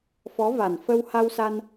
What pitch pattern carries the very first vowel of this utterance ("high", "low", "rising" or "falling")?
rising